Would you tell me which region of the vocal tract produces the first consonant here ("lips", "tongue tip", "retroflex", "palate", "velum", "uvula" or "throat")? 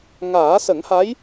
velum